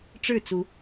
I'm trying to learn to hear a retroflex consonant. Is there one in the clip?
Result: yes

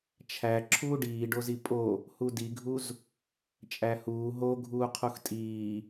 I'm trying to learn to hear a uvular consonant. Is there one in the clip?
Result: yes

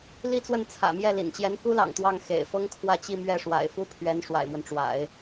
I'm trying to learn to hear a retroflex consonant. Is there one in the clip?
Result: yes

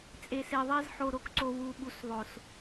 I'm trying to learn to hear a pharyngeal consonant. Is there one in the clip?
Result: yes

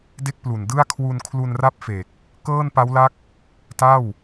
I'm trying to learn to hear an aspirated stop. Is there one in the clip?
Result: yes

